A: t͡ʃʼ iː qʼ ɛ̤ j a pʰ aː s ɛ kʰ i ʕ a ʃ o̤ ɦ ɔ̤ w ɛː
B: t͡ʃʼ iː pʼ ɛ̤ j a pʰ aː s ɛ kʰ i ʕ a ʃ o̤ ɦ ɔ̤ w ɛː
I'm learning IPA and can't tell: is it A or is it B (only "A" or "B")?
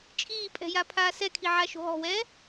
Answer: B